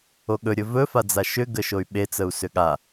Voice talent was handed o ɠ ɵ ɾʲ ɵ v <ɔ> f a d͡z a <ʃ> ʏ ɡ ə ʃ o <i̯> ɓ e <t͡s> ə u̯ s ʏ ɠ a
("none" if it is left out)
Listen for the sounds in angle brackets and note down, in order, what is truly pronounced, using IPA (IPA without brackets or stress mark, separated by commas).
ɵ, ʃ, y̯, t͡s